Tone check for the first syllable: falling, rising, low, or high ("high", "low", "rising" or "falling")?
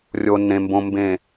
low